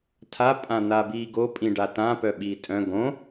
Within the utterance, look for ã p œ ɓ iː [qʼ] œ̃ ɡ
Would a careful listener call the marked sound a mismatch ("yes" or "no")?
yes